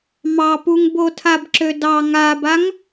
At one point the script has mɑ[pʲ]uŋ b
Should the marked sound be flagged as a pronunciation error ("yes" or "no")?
yes